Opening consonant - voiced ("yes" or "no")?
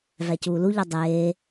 yes